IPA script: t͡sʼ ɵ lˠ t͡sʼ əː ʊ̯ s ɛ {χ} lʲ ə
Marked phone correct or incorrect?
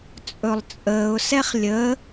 correct